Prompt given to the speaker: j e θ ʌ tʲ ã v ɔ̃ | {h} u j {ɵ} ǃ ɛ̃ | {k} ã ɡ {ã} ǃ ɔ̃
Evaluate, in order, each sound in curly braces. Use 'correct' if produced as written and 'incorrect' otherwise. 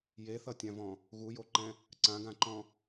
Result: incorrect: ɣ, incorrect: o, incorrect: ǀ, correct

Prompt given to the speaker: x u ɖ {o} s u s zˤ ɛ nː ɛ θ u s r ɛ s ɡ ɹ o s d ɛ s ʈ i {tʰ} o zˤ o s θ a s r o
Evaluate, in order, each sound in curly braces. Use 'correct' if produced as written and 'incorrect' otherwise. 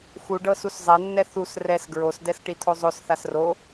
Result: incorrect: ɤ, correct

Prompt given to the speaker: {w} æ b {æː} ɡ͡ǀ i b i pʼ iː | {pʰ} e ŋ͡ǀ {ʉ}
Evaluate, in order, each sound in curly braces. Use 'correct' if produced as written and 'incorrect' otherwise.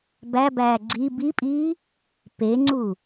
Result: incorrect: b, correct, incorrect: p, incorrect: u

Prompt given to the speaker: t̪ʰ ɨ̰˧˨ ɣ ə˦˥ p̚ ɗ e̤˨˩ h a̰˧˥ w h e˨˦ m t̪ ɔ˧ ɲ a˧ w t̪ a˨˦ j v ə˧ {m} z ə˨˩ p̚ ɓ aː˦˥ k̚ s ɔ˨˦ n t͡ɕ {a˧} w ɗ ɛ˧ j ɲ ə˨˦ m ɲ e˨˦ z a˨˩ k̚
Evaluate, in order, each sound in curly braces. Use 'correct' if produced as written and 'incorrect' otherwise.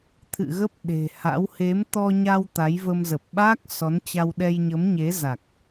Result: correct, correct

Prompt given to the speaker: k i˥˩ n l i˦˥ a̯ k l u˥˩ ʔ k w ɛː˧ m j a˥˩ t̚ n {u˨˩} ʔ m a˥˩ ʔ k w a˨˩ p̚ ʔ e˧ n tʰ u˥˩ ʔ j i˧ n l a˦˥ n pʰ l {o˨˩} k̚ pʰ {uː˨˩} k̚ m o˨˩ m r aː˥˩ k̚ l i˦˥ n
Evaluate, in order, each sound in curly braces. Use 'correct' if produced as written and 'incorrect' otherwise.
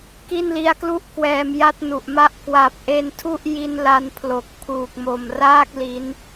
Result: correct, correct, correct

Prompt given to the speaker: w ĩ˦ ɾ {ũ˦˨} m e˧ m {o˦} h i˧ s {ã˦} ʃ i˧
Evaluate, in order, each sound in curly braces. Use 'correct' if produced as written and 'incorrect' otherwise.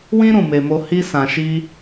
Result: correct, correct, incorrect: ã˨

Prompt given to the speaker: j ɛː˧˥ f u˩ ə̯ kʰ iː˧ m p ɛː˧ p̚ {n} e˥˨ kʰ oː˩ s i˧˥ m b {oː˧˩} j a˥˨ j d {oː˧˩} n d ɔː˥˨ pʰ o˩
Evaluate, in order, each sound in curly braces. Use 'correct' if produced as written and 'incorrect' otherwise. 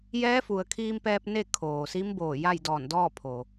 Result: correct, correct, incorrect: ɔː˧˩

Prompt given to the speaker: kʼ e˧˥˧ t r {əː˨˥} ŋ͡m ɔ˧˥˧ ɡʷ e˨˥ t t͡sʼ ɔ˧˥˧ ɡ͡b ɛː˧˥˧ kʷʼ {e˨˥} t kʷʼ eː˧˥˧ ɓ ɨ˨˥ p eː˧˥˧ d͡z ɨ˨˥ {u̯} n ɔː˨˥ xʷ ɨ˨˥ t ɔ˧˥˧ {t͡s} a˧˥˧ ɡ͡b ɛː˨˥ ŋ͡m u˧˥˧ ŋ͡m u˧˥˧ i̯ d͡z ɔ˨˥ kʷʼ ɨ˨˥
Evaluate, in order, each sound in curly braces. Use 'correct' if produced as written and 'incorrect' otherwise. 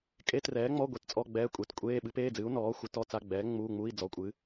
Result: incorrect: ɛː˨˥, correct, correct, correct

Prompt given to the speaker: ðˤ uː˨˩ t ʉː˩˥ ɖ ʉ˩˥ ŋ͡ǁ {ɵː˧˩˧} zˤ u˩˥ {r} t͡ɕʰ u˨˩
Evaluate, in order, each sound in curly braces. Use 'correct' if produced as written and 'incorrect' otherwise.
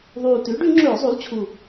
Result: correct, incorrect: l

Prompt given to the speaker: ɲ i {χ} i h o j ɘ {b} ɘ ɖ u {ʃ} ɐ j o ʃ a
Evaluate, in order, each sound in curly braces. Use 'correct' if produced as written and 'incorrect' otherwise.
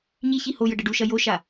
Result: incorrect: ç, incorrect: ɖ, correct

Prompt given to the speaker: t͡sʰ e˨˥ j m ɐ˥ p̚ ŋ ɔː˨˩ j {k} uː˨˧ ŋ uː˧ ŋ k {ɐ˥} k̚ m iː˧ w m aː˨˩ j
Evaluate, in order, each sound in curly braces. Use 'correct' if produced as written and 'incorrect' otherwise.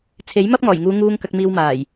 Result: incorrect: ŋ, incorrect: ɐ˧

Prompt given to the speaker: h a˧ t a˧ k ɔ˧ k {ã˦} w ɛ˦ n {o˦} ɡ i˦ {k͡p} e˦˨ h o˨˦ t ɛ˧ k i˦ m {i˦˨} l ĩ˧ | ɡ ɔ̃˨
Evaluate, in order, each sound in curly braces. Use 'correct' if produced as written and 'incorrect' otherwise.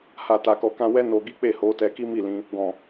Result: correct, incorrect: o˧, correct, correct

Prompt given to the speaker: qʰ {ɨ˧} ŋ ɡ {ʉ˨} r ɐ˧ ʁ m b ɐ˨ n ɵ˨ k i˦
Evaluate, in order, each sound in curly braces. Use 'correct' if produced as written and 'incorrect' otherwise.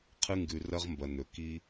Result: correct, correct

